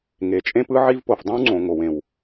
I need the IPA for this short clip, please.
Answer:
ŋ e˩ t͡ʃʼ ẽ˥ p ɯ˥ ʕ i˥ v p o˩ f dˤ õ˥ w ŋ͡ǀ õ˩ ŋ o˩ w ẽ˩ w

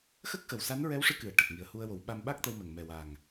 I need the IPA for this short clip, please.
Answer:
x ə˦˥ k̚ x ə˨˩ w s a˧˥ n ɹ ɛ˧˥ w ʂ ɨ˧ k ɨ˨˩˨ ə̯ ʈ ə˨˩ k̚ ŋ i˨˩ ə̯ h u˧ ə̯ w o˨˩˦ w ɓ a˧ m ɓ a˦˥ k̚ t̪ ə˧ w m ə˨˩ ŋ m ɛ˨˩ w a˨˩ ŋ

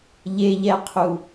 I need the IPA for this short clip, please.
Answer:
ʎ e ʎ ɛ qʰ u

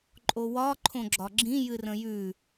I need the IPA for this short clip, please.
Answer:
ǃʼ o w ɒ ǃʰ õ ɡ͡ǁ ɒ ɡ͡ǁ ĩ j ɨ r ə̃ j ʉ

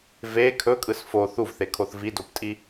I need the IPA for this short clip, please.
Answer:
v e kʰ ɵ kʼ ɯ s f o θ u v θ e kʰ o θ v i d o p tʼ i

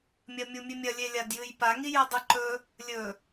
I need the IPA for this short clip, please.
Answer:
mʲ ɐ mʲ u mʲ ʉ mʲ ɐ lʲ e lʲ a d j ɨ j p a ŋ i j ɨ dˤ ɨ ǃ ɵ | lʲ ɵ

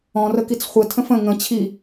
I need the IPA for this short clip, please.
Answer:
ɔ̃ r ə k i t͡s χʷ ə tʰ ə̃ f ə̃ ŋ ə̃ t͡ɕʰ i

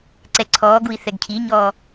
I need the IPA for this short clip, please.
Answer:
ǀ ɛ ǀʰ ɔː ɡ u i̯ θ ɛ ɡ cʰ i ɲ ɔː

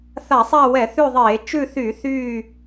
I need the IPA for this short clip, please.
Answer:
θ a˧˩˧ sˤ a˦˨ w ɛ˧˩˧ θ ʉ˦˨ ðˤ eː˧˩˧ t͡ʃ ʉ˦˨ θ y˧˩˧ θ yː˦˨

